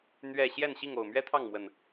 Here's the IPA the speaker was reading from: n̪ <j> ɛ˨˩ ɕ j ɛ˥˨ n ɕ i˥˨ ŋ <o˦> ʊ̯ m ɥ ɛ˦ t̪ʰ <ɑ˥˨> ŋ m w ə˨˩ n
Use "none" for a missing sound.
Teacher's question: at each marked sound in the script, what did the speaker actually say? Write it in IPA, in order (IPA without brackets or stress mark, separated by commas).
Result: ɥ, o˨˩, ɑ˥˨